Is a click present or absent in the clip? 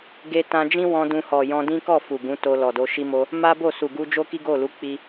absent